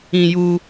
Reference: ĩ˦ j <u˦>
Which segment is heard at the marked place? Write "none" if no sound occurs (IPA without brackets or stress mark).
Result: u˦